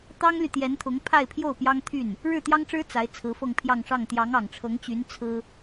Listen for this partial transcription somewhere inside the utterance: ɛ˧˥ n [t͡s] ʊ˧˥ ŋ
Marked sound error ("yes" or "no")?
yes